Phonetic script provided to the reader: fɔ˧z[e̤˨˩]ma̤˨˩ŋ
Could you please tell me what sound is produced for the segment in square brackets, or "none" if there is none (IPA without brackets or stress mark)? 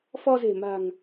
e̤˨˩